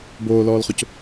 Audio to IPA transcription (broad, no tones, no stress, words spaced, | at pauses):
boːlɔːlχʊc